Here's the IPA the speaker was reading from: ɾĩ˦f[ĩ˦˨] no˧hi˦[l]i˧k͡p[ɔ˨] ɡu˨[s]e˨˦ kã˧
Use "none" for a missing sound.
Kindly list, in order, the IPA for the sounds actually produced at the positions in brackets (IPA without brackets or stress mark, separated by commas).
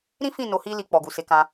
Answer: ĩ˦˨, l, ɔ˨, s